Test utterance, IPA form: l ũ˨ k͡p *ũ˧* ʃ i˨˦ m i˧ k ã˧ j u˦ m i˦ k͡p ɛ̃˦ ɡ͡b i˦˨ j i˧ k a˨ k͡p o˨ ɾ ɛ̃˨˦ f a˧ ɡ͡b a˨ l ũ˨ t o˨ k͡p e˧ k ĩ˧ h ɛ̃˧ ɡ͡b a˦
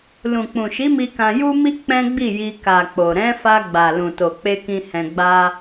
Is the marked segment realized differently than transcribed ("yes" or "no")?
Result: yes